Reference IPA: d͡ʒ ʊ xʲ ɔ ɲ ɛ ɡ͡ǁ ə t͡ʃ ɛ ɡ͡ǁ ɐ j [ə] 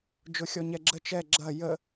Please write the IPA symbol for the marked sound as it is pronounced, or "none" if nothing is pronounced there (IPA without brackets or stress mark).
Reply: ə